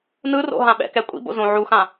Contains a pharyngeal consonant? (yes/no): yes